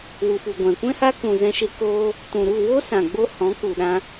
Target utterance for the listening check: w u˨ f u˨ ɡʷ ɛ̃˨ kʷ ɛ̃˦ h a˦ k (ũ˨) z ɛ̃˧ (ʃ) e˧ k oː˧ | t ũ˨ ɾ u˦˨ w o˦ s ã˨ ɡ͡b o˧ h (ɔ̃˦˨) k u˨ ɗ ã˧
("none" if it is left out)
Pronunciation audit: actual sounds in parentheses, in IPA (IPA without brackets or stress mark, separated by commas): ũ˨, ʃ, ɔ̃˨˦